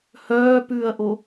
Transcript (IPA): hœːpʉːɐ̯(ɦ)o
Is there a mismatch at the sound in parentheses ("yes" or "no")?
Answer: yes